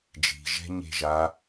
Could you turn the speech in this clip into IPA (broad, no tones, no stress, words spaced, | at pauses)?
d͡ʒi̤ʒɛ̤ ɲe̤ʒa